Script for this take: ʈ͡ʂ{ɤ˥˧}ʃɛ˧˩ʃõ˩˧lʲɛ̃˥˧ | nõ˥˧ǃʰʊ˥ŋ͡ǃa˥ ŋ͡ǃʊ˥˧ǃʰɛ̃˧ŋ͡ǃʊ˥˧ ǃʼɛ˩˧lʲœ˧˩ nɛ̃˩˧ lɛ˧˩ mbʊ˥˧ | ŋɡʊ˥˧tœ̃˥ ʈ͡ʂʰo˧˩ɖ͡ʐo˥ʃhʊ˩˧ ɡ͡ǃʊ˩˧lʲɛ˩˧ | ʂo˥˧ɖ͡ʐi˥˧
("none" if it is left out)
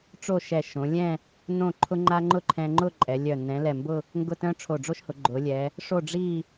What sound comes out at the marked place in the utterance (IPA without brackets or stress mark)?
o˥˧